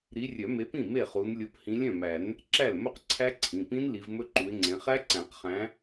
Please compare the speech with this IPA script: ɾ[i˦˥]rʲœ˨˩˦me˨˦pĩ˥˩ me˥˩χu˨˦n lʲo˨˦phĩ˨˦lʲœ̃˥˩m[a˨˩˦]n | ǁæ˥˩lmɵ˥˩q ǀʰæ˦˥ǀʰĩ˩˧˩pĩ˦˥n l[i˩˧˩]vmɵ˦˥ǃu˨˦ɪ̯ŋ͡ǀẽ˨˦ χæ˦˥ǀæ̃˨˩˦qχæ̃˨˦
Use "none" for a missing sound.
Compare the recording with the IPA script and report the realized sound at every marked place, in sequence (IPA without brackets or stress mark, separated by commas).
i˨˦, æ˨˩˦, i˨˦